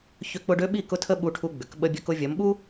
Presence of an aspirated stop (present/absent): present